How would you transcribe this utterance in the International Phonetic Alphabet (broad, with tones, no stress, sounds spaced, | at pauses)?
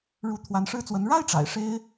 ɻ u˧˥ t̪ʰ w a˧˥ n ʂ ɻ̩˥ t͡s w ə˧˥ n ɻ a˥ ɪ̯ ʈ͡ʂ a̰˨˩ ɪ̯ ʂ e˥ ɪ̯